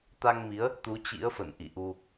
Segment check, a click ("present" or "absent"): absent